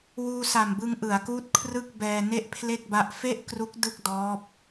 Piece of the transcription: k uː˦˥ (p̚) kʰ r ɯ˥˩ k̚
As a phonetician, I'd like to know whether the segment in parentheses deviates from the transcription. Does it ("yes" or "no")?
yes